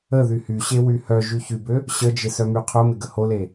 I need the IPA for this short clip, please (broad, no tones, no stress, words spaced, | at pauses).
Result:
ə ðyhyɕe wyhœʒy çybø | ɕəd͡ʒɪ sœmyqʰʊmɪ ɡəhole